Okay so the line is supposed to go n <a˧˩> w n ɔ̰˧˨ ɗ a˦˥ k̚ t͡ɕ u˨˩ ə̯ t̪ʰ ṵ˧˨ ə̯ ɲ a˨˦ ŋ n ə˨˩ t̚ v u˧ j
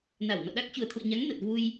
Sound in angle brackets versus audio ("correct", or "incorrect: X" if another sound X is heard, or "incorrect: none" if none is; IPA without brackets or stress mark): correct